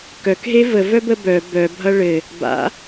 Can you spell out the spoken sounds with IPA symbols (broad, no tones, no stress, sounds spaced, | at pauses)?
k œ k ɦ e v ə v œ b ə b œ b œ bʱ ʌ ɭ ɘ | b a̰